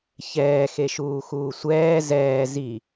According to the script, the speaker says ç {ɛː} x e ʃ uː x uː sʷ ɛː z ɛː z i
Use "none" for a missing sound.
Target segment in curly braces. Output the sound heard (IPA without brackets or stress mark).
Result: ɛː